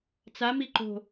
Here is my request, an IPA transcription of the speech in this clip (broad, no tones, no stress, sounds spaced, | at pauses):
t͡s a m i ǃ o̤